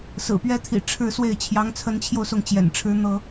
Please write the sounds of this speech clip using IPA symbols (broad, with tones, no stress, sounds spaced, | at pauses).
s ɹ̩˨˩ p ɥ ɛ˥ t̪ʰ ḭ˨˩ ʈ͡ʂʰ ɻ̩˥˧ s w e˥˩ ɪ̯ t͡ɕʰ j ɑ˧˥ ŋ t͡sʰ ə˧˥ n t͡ɕʰ j o˧ ʊ̯ s ʊ˥˩ ŋ t͡ɕ j ɛ̰˨˩ n ʈ͡ʂʰ ɻ̩˥ n̪ ɤ˥